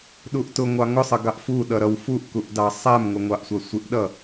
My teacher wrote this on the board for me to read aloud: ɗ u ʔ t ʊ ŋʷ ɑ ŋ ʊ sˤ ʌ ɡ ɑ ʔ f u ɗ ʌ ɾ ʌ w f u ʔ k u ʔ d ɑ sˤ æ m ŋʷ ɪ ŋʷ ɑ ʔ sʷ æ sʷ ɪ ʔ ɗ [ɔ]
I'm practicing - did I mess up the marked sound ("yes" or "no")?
yes